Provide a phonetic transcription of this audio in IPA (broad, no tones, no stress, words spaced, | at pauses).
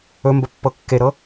ɵmbə pːɤkːeɾɤ